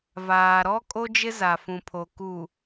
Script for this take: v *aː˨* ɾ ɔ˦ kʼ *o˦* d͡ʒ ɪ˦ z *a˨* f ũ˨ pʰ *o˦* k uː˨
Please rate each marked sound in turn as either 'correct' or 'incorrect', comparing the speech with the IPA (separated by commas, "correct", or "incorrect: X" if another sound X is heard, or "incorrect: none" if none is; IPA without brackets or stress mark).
correct, correct, correct, incorrect: o˨